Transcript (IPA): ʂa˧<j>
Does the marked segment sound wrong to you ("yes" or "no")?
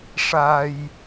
no